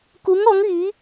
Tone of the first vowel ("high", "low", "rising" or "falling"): rising